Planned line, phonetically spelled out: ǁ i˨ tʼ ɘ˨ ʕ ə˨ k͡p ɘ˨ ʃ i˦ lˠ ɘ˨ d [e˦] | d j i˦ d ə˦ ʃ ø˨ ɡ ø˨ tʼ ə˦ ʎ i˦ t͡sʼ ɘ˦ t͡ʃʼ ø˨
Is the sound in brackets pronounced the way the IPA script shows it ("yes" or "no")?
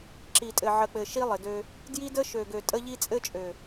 no